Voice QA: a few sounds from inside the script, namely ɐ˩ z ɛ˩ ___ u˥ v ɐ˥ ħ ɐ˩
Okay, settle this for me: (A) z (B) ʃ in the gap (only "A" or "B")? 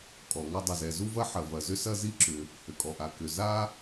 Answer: A